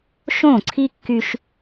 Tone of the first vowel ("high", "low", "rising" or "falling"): falling